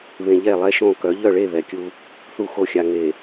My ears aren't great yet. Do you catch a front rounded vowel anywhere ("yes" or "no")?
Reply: yes